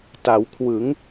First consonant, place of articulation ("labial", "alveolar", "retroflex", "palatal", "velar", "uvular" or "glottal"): alveolar